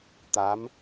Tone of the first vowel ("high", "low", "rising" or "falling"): rising